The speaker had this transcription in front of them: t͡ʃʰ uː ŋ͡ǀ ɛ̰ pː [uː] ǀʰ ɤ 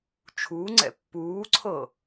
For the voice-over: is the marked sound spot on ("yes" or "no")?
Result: yes